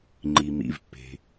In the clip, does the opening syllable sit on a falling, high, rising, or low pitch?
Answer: low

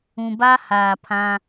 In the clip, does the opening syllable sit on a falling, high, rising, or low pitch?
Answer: low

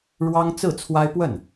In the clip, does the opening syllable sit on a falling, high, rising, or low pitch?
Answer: high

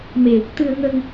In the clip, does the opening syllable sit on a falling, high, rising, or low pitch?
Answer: low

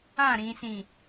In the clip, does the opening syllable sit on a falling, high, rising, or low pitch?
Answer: falling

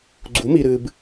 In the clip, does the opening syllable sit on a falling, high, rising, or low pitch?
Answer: rising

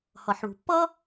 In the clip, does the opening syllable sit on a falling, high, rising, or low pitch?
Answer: low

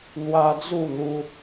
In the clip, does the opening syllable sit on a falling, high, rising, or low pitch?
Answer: high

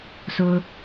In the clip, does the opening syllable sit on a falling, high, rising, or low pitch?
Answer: high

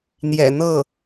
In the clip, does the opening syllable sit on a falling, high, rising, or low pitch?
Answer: low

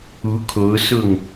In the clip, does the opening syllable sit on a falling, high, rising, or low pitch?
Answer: rising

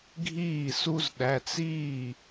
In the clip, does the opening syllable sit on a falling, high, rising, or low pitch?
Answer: falling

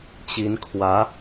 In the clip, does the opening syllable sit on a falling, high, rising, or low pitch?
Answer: rising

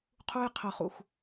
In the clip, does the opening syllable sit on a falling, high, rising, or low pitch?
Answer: high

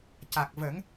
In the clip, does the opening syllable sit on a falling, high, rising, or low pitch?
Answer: low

